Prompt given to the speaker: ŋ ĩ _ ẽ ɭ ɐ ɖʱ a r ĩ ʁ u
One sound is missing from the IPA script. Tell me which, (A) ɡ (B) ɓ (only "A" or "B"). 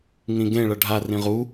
A